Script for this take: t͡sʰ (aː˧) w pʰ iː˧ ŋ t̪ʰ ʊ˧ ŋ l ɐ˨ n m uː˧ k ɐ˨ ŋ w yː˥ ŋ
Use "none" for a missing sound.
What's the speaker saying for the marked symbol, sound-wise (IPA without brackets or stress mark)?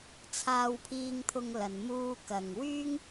aː˧